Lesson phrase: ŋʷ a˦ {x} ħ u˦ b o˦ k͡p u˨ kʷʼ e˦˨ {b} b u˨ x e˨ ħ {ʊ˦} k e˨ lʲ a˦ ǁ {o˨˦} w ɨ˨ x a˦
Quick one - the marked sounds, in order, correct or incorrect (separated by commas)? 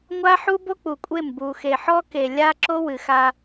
incorrect, incorrect, incorrect, incorrect